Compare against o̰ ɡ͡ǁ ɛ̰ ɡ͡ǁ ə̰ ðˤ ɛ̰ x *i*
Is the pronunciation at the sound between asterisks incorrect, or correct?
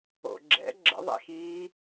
incorrect